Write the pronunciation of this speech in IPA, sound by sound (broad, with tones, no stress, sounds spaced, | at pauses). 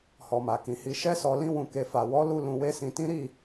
h ɔ˨ m a˨ k ĩ˨ h i˧ ʃ ɛ˦ s ɔ˧ l ĩ˦ w ũ˧ k e˧ f a˨ w ɔ˨˦ l u˦ l ũ˧ w e˦ s ĩ˧ t ĩ˦ ɾ i˦˨